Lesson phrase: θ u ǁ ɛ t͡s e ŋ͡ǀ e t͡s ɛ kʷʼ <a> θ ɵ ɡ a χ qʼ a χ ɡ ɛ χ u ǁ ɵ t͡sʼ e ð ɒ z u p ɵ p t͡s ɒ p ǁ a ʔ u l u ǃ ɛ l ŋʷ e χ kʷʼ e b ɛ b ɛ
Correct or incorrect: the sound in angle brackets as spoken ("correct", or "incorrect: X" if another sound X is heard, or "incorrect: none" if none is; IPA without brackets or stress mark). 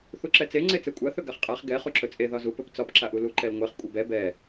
correct